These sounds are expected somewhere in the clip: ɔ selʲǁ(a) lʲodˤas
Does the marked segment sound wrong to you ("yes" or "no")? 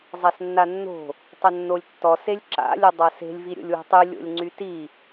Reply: yes